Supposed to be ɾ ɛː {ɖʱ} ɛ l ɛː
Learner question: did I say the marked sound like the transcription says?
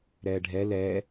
yes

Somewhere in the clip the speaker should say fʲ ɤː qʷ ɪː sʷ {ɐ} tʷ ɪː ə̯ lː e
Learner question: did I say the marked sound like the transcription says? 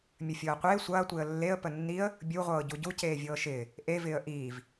no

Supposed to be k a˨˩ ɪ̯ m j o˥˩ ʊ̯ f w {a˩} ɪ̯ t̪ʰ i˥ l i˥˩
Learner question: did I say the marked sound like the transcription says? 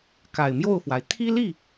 yes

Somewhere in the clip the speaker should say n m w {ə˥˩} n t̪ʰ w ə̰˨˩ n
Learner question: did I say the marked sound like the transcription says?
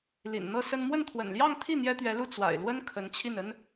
yes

